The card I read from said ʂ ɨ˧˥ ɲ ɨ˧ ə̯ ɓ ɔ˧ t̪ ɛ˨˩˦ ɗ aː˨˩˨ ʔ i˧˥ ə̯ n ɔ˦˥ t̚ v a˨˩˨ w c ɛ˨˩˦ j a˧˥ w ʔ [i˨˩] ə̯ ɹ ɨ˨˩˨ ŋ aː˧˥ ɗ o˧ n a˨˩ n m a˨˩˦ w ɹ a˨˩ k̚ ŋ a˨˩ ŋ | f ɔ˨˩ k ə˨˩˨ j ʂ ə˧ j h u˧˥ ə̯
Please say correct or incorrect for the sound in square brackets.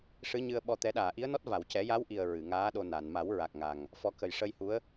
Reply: correct